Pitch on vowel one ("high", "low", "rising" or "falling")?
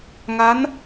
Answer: rising